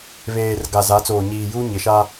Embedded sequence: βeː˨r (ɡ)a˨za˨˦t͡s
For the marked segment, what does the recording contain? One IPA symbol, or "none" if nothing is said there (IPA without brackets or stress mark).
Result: ɡ